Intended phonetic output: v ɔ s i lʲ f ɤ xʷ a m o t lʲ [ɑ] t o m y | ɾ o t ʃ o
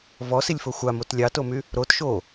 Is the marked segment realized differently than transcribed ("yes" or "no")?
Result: no